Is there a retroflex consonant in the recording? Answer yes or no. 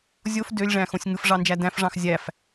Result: yes